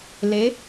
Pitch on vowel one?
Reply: rising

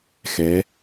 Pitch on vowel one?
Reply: rising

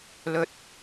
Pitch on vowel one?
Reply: low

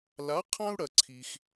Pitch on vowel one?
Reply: rising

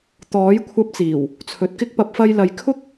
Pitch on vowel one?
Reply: rising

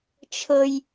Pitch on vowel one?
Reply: high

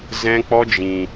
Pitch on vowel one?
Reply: high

